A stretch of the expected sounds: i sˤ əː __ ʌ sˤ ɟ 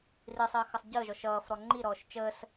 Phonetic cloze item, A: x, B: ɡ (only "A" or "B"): A